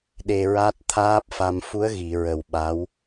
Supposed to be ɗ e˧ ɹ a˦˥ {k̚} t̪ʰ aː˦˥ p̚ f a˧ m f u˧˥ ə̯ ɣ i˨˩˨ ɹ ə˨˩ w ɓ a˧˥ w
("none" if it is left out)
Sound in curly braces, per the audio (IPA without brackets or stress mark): t̚